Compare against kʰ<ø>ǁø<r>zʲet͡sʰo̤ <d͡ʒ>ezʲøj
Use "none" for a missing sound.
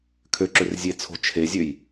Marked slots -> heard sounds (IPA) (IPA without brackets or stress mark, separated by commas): ø, r, t͡ʃʰ